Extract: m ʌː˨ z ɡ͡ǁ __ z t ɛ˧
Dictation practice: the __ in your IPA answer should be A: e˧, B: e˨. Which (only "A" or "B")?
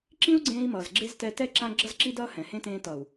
A